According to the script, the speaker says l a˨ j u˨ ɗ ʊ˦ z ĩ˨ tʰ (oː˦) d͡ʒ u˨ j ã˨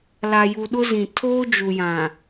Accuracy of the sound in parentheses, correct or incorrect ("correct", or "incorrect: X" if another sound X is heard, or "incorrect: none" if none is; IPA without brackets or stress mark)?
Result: correct